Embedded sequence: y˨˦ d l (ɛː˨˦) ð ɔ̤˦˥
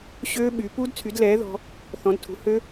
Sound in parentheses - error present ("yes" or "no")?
no